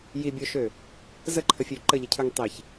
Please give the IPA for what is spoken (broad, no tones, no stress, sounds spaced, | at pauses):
j i bʲ o ʃ ø | z ə ǃʰ ə fʲ ø ǃ ə ʎ ə cʰ ə˞ ŋ tˤ i ç